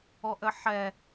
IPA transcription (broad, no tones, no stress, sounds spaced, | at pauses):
ɔ ʔ ə ħ ɛ